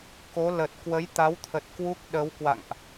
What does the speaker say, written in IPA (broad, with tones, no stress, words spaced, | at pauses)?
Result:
ko˨˦lə˨˩t̚ kwə˨˦jt̪a˨˦wt̪ʰə˨˩t̚ kwu˦˥k̚ɗə˨˦wkwa̰˧˨ŋʔ